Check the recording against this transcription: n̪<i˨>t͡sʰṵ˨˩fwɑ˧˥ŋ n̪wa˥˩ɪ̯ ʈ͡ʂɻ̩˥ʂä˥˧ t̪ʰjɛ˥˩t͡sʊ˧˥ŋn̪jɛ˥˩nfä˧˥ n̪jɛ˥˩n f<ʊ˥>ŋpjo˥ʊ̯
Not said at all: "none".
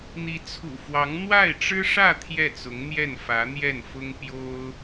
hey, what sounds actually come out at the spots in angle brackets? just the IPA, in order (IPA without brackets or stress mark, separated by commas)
i˧˥, ʊ˥